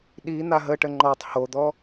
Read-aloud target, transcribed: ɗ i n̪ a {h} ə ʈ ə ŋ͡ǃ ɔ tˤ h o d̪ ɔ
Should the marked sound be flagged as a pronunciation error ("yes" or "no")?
yes